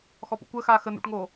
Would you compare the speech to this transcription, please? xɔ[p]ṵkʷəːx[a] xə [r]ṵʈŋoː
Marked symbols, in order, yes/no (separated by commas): yes, no, no